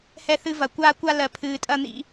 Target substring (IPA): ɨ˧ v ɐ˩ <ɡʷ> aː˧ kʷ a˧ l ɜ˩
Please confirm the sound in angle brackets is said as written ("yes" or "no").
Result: no